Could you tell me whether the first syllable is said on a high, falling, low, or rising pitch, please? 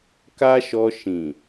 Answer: high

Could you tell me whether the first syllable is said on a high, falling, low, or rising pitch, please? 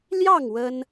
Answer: falling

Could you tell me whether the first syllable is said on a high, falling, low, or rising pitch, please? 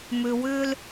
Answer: low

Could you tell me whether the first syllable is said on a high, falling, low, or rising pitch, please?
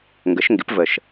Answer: rising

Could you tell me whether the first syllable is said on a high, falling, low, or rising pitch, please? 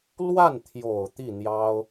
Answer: falling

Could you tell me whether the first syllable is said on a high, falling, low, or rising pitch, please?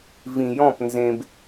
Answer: low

